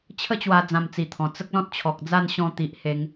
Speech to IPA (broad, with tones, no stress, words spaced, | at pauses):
t͡ɕʰə˥˧t͡ɕwa˧ d͡zã˧mt͡si˨˩t̪ʰɔ̃˨˩ t͡sə˦k̚lɔ̃˦t̚t͡ɕʰɔ˨k̚d͡za˥˧n ɕɔ̃˧t̪i˨ʔ he˧ŋ